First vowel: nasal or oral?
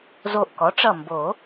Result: oral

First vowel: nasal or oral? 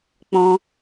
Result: nasal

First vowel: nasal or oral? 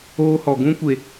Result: oral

